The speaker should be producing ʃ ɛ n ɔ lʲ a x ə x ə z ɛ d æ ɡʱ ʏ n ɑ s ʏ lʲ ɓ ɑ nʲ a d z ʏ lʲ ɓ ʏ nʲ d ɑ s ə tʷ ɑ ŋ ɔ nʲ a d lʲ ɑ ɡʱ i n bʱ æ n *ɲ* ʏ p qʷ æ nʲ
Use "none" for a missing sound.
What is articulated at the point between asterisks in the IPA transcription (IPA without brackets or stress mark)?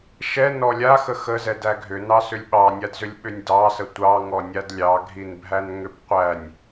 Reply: ŋ